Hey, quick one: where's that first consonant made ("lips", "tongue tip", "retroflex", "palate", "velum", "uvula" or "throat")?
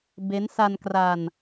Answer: lips